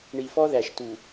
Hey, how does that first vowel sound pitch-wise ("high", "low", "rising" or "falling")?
low